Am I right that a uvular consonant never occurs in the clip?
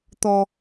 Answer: yes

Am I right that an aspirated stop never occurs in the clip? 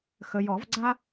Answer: yes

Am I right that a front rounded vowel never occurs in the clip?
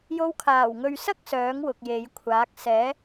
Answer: no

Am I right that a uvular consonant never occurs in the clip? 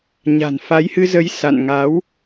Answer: yes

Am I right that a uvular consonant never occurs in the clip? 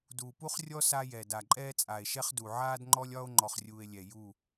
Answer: no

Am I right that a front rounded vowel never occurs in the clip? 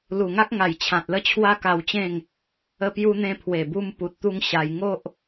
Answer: yes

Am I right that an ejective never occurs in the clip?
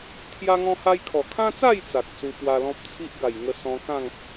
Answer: yes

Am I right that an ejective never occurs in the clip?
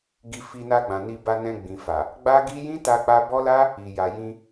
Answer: yes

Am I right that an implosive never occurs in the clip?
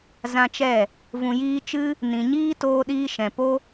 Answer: no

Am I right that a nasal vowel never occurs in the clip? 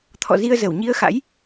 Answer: yes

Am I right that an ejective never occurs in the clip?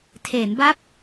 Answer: yes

